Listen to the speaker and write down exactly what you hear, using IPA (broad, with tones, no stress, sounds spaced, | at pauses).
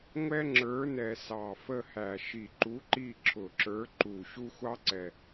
ŋʷ ɛ˥ ŋ͡ǁ ə˞˨˥ n ɛ˨˩ s ɑ˨˩ f ə˦˨ h æ˨˩ ʃ i˨˩ ǃ u˨˥ ǃ i˦˨ ǁʰ ʊ˨˩ ǁ ə˞˨˥ ǃ u˨˩ ɕ u˥ xʷ ɑ˥ ǀ ɛ˨˩